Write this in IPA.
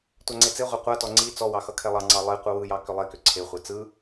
tʷaŋ͡ǀet͡seʁʷe qʷatɔ ŋ͡ǀi t͡sɔwɑ xʌkʰɛlˠɑŋ͡ǀɑ lˠi qʷɯwɯjɑ kʏlˠekʏ ǀʰeχʷe t͡sɯ

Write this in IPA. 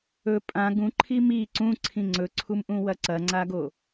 ɵ pʼã ɡũǃʰi mi ǀũǀʰĩ ŋ͡ǀɵǀʰumʔũwɐ ǀɐŋ͡ǀaɡo

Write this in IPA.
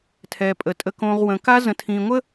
tʰɛ˨pʼə˨ tʼə˨kõ˨ʁ wə̃˨ ka˦zə̃˨tʰĩ˨ŋʷə˦

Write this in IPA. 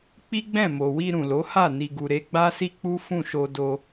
k͡pi˦ɡ͡bɛ̃˦˨mo˨wi˧ ɾũ˨lo˨˦ha˦˨ ni˨ɡu˨ ɾe˧ɡ͡ba˦si˦ k͡pu˦fũ˦˨ʃo˧ do˧

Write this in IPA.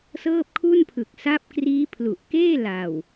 sɤː˥˩p̚kʰu˥˩npʰɯ˨˩k̚ sa˦˥p̚kriː˦˥pʰlu˨˩ʔ keː˥˩la˨˩w

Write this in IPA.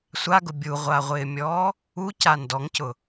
sʷaɡʊ bʲuʁʷaʁʷɪːmʲɔː | uca ndɔŋcʊ

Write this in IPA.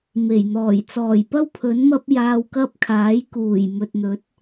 me˨˩jn̪ɔː˨˩j t͡sɔː˨˩jpɐ˥w pʰɵ˨˥nmɐ˥p̚ jaː˧wkɐ˥p̚kʰaː˨˥j kuː˨˩j mɵ˨t̚n̪ɵ˨˥t̚

